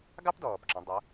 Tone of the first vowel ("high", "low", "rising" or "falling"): high